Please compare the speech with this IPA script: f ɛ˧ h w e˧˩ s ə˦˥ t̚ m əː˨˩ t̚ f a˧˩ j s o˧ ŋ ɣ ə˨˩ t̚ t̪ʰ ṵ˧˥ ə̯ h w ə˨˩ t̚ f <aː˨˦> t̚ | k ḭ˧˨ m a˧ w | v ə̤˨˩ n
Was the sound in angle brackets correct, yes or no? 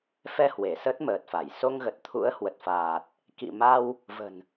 no